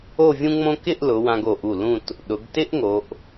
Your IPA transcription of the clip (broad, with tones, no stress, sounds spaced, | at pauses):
o˥˧ vʲ ũ˥ ŋ͡m õ˥ k ɪ˥˧ ʔ l ʊ˩˧ w ã˧ ɡ o˧˩ ʔ u˧˩ l ũ˥˧ t | ɗ ʊ˩˧ ɡ t ɪ˥ ʔ ŋ o˩˧ ʔ